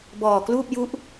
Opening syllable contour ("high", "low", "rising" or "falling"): low